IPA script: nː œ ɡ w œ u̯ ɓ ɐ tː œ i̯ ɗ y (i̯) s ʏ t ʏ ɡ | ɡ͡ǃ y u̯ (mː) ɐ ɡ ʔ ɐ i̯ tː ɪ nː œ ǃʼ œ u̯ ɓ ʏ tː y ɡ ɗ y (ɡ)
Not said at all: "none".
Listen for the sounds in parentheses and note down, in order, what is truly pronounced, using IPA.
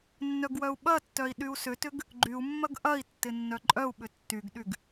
u̯, mː, ɡ

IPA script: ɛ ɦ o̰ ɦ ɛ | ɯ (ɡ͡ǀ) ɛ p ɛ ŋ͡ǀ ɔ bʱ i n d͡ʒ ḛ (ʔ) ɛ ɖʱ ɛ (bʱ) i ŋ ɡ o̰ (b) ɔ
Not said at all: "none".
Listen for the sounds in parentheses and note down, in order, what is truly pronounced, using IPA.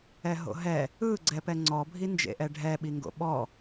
ɡ͡ǀ, ʔ, ɓ, ɓ

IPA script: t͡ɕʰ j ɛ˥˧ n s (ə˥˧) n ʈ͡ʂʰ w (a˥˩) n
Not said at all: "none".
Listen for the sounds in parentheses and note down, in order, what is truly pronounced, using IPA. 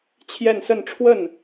ə˥˧, ə˥˩

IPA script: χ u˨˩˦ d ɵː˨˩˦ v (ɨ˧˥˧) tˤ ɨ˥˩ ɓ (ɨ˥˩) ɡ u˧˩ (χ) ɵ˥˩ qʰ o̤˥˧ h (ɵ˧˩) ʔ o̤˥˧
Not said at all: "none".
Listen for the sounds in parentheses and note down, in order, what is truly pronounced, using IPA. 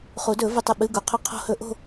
ɨ˧˩, ɨ˧˥˧, qʰ, ɵ˥˧

